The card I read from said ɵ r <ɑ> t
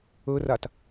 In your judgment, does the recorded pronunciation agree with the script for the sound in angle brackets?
no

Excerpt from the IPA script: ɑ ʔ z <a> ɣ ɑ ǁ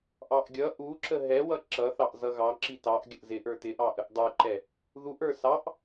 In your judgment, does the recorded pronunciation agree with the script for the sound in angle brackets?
no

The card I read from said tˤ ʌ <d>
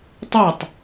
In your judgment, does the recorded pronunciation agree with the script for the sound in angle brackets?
no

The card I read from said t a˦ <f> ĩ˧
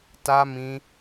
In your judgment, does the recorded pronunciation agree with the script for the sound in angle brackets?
no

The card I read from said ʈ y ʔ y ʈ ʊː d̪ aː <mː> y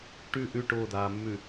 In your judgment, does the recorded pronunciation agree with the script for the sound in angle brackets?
yes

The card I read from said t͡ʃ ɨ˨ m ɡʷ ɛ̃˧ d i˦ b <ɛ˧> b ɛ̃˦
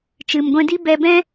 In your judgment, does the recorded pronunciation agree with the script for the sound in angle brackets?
yes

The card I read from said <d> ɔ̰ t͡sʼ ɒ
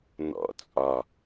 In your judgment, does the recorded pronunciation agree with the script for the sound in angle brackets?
no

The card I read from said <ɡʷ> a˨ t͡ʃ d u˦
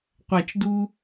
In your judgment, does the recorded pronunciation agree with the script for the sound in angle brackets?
no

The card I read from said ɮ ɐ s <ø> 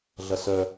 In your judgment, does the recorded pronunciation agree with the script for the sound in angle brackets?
no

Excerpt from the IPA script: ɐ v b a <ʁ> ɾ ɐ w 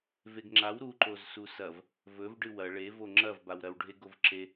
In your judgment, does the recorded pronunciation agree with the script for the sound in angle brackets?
no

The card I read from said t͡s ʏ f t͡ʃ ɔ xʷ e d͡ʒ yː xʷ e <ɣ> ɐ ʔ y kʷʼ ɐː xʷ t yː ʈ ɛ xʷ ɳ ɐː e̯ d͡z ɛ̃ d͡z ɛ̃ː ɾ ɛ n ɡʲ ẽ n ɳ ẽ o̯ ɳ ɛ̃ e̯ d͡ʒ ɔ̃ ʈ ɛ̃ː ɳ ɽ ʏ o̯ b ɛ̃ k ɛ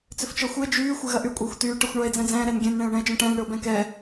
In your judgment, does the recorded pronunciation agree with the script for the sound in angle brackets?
yes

